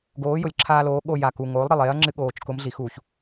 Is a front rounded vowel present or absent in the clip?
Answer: absent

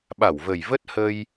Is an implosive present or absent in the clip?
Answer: present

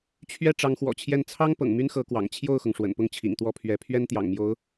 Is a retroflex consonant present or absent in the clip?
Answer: present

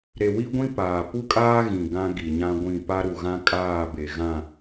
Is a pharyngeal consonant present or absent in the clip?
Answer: absent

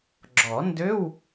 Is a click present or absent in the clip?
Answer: present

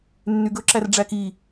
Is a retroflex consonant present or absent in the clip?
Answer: present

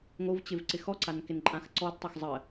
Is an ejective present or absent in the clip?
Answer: present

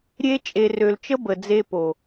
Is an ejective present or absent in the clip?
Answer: present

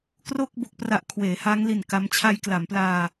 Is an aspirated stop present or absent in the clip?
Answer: present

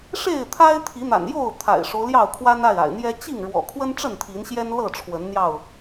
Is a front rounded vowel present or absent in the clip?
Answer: absent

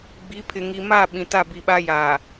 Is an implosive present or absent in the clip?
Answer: present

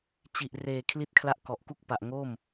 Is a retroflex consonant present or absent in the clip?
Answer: absent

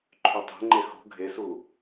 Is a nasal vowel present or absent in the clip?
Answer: absent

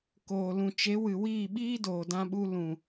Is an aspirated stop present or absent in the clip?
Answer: absent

